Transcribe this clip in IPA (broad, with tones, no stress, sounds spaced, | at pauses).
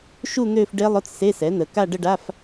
ʃ u˥˧ n̪ øː˥˧ f ɖ e˦˥ lˠ ʊ˧˥˧ t͡s s e˧˥˧ s ɛ˩˥ n̪ ə˩˧ k a˥˧ ɖ ə˥˧ ɖ a˧˥˧ f